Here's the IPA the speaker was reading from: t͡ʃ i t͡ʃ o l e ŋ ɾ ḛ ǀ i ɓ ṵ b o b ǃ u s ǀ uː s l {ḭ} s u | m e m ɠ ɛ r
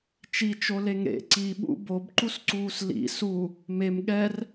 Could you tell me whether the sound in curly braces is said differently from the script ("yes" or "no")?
no